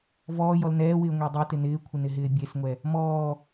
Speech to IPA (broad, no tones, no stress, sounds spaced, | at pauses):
v ɔː j ɔ l n ɛː w ɪː ŋʷ e dˤ e t ɪ n ɪː kʷʰ ɪ n ɪ ɦ ɪː bʲ e s ŋʷ ɛ | m ɔː